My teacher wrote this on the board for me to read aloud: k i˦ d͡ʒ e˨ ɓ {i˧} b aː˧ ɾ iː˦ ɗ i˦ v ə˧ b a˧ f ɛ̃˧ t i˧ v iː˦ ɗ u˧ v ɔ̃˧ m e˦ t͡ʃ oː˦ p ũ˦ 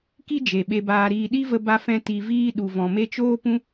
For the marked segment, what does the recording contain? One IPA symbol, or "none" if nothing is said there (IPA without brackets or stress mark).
e˧